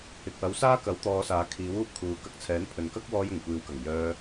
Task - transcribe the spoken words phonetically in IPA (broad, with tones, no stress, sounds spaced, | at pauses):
ɪ˨ k̚ w ɐ˨˥ w s aː˥ k ɐ˨˥ w t̪ ɔː˨˧ s aː˨ kʰ iː˨˥ w uː˧ p̚ kʰ uː˨ k ɐ˧ k̚ t͡sʰ ɛː˨˥ n pʰ ɵ˨ n k ɐ˥ k̚ w ɔː˧ j ʊ˨˩ ŋ kʷ iː˨ w k ɐ˨˩ ŋ j œː˧